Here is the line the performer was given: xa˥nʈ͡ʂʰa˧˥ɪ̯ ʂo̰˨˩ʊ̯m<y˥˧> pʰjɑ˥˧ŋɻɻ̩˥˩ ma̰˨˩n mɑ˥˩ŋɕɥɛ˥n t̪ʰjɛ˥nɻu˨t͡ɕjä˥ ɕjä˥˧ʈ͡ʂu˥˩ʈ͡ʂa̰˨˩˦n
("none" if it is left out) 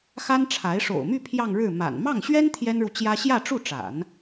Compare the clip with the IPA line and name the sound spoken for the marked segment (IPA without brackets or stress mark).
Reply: y˥˧